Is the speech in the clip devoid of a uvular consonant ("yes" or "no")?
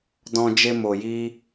yes